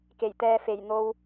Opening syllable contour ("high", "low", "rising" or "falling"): low